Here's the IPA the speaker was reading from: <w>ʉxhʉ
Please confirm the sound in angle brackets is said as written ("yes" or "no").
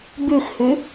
no